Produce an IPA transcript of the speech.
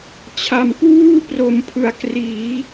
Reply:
t͡ɕʰ a˩˦ m k w uː˥˩ p r o˩˦ m pʰ ɯ˩˦ a̯ k r iː˩˦

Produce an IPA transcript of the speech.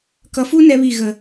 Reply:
k ʌ˨ f u˦ n ɛ˦ β i˦˨ ɣ ə˨

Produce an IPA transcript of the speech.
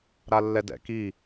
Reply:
ɾ a lː ɛ d ɛ̰ k i

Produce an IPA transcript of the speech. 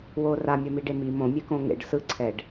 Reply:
w oː r a mʲ ʌ m i ɖ e m i m õ mʲ ɛ k õ ŋ ḛ ɖ s ɯ ǀʰ ɛ ɖ

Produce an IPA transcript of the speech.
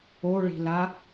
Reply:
o ɭ i̤ l a

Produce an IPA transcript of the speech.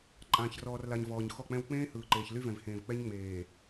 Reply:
ǃʼ ãː˨ ç r ɔː˨ r l a˨ ɲ v ɔː˨ ɲ x ɔ˦˨ k͡p ɛ̃˦ w k͡p ẽː˦ h ɯː˨ ǃ eː˨ ç l y˦ v ɛ̃˨ v h ẽː˨ v k͡p ɛ˦ ɲ ŋ͡m eː˨

